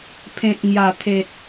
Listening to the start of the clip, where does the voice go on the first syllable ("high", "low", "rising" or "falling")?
low